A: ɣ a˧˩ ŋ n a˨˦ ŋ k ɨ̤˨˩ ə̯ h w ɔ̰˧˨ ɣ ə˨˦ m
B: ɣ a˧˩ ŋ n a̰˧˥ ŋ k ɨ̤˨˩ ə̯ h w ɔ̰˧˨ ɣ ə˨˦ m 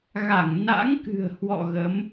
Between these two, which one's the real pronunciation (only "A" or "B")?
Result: B